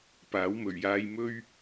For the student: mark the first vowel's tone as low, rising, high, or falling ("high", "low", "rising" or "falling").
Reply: rising